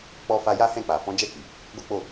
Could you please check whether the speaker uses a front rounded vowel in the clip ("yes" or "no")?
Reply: no